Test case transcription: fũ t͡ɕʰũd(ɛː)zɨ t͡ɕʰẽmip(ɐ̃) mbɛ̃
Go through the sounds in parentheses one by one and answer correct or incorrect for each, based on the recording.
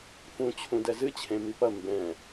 incorrect: ɛ, incorrect: ɐ

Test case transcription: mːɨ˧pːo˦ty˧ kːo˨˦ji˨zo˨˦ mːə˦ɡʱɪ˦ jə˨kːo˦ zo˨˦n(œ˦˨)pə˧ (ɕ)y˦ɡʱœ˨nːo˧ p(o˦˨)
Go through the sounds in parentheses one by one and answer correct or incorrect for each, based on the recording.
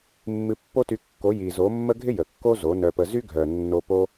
incorrect: œ˧, incorrect: z, incorrect: o˦

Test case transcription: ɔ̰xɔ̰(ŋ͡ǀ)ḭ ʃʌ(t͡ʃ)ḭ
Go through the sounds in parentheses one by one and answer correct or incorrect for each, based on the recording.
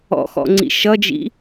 correct, incorrect: d͡ʒ

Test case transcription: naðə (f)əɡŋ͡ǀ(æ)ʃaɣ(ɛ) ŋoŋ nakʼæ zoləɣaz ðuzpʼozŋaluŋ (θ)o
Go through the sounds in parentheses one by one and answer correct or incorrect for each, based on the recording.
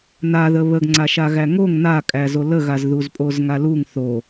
incorrect: β, incorrect: a, incorrect: æ, correct

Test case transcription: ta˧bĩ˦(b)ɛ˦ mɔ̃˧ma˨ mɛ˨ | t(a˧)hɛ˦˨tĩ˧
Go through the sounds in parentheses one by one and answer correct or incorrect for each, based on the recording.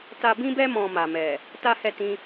correct, incorrect: a˦

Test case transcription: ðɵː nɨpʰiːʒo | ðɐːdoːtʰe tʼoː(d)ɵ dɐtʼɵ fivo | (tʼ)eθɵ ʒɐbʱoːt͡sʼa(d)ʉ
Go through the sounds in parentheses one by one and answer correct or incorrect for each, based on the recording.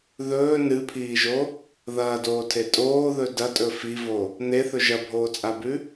incorrect: ð, incorrect: n̪, incorrect: b

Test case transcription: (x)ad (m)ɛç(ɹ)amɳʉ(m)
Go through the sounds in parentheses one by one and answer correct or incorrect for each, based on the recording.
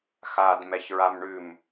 correct, correct, correct, correct

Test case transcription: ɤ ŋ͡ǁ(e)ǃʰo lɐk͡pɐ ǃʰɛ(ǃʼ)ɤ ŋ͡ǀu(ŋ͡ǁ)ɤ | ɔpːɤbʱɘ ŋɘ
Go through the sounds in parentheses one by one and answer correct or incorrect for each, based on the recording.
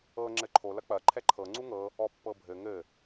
incorrect: ɘ, incorrect: ǃʰ, incorrect: ŋ

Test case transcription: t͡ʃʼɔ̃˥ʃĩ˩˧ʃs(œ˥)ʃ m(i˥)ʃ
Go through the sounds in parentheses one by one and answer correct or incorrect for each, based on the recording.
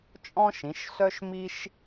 correct, correct

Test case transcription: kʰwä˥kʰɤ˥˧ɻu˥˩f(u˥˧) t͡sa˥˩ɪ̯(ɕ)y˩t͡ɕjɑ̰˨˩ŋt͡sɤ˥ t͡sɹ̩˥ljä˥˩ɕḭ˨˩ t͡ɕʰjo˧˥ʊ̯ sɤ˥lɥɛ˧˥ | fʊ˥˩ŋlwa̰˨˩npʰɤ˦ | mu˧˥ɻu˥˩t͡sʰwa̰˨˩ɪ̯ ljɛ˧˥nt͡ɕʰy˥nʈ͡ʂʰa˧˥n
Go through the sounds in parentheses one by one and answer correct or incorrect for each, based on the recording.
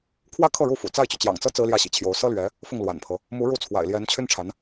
incorrect: ṵ˨˩, incorrect: t͡ɕ

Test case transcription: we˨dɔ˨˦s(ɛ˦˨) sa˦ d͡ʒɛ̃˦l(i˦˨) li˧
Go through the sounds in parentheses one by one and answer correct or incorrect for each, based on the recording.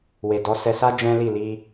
incorrect: ɛ˧, correct

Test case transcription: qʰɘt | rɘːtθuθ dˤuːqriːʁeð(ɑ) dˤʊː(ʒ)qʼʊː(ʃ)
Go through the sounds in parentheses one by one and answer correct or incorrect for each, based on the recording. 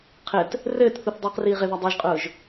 incorrect: a, correct, incorrect: ʒ

